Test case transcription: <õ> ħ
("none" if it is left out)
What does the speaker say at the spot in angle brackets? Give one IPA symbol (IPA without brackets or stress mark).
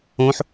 õ